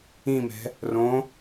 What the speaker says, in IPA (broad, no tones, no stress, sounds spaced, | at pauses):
ĩ m ɛ̤ | r õ